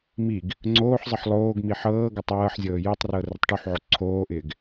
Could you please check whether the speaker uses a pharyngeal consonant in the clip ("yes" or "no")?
yes